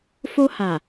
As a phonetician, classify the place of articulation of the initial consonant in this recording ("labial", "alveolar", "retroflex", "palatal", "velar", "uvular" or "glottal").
labial